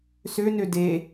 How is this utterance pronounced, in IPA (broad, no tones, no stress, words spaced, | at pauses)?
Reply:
sønø de